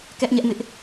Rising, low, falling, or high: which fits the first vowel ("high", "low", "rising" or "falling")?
high